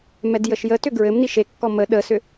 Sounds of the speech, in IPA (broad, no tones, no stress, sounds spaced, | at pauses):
m ɛ d j ə ʃ j ə t ʏ ɡ ɹ ɘ m n i ʃ e kː ɔ m ə ɗ ə s ʏ